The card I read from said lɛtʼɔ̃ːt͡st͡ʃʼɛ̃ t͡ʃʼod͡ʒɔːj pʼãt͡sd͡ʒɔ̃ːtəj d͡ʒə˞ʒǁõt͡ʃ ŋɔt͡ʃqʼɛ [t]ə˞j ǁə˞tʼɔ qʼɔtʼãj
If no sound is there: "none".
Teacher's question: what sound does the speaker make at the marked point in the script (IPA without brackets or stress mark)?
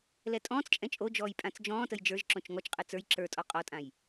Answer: t͡s